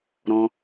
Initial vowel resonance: nasal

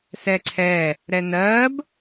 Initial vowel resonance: oral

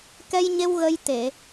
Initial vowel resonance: oral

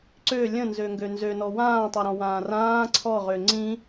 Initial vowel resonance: oral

